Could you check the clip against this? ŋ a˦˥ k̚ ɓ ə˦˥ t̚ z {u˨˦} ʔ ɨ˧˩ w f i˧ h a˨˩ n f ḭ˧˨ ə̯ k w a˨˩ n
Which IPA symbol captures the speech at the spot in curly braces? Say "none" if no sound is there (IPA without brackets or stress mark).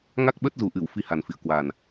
u˨˩